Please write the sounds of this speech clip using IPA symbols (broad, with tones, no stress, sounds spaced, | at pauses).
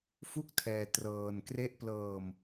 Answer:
f u˦˥ k̚ tʰ ɛː˧ t r ɤː˧ n k r e˦˥ ʔ p l ɤː˧ m